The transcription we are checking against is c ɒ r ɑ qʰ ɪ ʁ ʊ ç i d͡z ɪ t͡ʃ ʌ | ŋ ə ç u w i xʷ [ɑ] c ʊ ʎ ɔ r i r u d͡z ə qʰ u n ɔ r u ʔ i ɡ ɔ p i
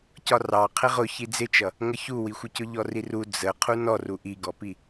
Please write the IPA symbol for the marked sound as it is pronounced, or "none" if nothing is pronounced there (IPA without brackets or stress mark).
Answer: ə